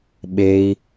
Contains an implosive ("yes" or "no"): yes